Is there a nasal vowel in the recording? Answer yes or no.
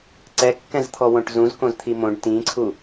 yes